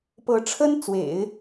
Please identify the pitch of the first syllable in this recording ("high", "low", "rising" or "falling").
rising